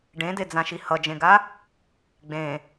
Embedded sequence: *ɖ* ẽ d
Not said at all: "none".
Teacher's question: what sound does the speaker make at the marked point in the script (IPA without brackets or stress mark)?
ɖ